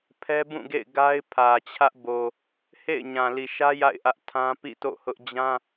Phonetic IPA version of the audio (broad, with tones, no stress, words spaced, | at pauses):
pʰɛ˦bũ˦˨ɡḛ˦˨ɪ̯ ɡa˦ɪ̯ pʰä˨t͡ɕʰä˦ʔbo˨ | hḛ˦˨ɪ̯ɲã˨ li˨ʃä˦ ja̰˦˨ɪ̯ ʔä˦ʔ tʰã˦pḭ˦˨ to̰˦˨hʊ˦ʔ d͡ʑã˦